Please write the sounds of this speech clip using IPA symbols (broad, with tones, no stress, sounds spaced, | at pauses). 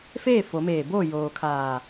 f eː˥˨ f o˩˧ m eː˧˩ b oː˥˨ j oː˩ kʰ aː˧˩